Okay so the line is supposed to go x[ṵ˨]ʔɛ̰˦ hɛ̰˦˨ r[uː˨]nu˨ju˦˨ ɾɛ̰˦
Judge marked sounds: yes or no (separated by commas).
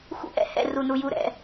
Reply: no, no